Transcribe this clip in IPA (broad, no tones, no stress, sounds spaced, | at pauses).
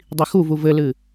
dˤ i x u v u v ɘ l ɨ